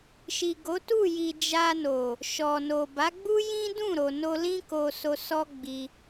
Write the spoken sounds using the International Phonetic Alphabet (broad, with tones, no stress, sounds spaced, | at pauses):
ʃ i˨ ɡ o˨˦ t u˦˨ j i˨ d͡ʒ a˧ n o˨ | ʃ ɔ˨ n o˨ b a˨˦ ɡ͡b u˦ j ĩ˦ d ũ˦˨ ɾ o˨ n o˧ l ĩ˦ k o˧ s o˧ s ɔ˦ ɡ͡b i˧